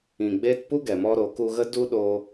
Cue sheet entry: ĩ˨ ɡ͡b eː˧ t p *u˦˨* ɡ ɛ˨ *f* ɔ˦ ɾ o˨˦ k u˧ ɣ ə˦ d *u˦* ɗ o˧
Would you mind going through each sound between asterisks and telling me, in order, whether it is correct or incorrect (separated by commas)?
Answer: incorrect, incorrect, correct